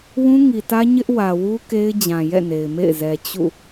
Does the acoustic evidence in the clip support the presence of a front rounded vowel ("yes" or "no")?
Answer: no